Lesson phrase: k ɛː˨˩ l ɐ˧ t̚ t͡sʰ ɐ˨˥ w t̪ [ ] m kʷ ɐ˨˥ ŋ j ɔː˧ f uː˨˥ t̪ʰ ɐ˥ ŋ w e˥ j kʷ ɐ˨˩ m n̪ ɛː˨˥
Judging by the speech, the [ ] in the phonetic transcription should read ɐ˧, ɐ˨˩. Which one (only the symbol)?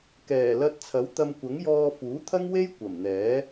ɐ˧